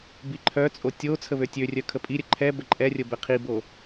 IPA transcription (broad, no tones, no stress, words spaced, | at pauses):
biǃʰœt͡sʼo tʲo t͡sʰəβøtʲørʲœ kʰəpʼiɾʲə ǃʰɛ bəǃʼɛrʲə bɛqʰibo